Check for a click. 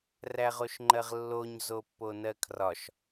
present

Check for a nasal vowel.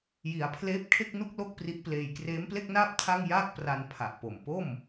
absent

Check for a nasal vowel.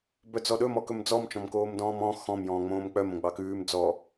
present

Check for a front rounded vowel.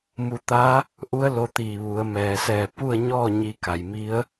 absent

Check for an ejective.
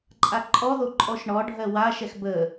present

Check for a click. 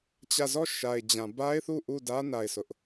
absent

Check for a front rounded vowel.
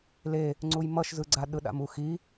absent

